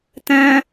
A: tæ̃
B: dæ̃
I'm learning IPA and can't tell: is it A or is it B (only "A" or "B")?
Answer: A